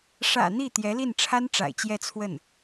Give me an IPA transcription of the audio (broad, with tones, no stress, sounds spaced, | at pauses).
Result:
ʂ ä̰˨˩ n̪ i˥˩ t̪ j ɛ˧˥ l i˥˩ n ʈ͡ʂʰ a˥ n ʈ͡ʂ a̰˨˩ ɪ̯ t͡ɕ j ɛ˥˧ t͡sʰ w ə˥˩ n